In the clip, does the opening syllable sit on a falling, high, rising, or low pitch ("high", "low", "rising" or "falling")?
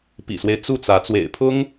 low